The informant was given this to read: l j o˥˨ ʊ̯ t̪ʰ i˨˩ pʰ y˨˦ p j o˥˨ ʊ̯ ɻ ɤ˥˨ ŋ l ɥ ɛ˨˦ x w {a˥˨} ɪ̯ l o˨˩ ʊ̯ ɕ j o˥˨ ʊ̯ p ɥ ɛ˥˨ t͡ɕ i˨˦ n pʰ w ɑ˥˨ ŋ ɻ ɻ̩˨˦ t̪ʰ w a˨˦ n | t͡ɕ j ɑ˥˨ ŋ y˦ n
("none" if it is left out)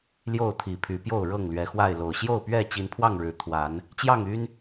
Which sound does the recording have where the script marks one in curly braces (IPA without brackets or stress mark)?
a˥˨